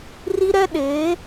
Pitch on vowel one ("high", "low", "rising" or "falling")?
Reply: high